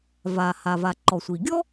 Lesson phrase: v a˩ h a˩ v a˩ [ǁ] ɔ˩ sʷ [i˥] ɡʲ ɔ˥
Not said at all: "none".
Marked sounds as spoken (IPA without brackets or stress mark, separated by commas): ǃ, i˩